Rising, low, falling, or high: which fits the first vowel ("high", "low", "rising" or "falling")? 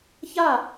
falling